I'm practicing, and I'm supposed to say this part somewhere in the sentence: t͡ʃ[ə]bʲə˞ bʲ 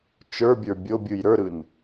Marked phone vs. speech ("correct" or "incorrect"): incorrect